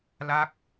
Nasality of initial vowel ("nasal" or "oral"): oral